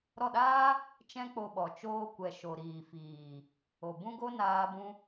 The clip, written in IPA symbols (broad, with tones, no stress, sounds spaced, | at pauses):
ɾ ɔ˦˨ ɗ aː˦ | t͡ʃ ɛ̃˦ k͡p o˧ ɓ ɔ˨ t͡ʃ oː˧ kʷ ɛ˨ ʃ o˨ ɾ iː˨ f iː˨ | o˨ b ũ˦ ɡ o˦ n aː˧ b ũ˧